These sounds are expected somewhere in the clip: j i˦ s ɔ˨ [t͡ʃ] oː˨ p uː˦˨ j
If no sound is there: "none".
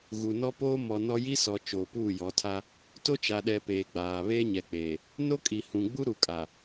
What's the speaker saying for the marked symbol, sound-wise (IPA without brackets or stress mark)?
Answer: t͡ʃ